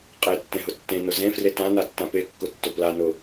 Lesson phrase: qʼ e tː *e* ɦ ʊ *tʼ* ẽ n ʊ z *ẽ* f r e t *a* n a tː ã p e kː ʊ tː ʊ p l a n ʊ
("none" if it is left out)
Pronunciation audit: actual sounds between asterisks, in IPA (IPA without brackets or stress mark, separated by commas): ẽ, tː, ẽ, ã